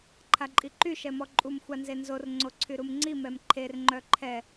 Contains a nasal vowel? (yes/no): no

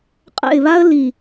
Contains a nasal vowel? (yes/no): no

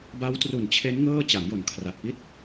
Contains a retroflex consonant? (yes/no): no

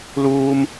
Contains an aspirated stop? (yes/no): no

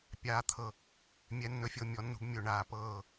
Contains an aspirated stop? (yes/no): yes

